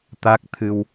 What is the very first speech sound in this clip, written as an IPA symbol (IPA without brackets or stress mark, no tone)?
t̪